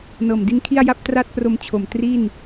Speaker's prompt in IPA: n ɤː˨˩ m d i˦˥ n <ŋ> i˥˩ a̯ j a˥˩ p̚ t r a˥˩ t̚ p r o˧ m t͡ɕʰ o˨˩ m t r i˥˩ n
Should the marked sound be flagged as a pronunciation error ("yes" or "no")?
yes